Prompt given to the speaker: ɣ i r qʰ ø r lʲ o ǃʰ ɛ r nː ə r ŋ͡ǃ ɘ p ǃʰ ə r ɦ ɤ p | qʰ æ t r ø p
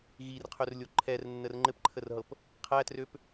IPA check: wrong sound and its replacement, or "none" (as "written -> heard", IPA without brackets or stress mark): none